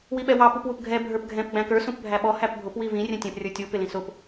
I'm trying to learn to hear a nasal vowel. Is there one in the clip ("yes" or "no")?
yes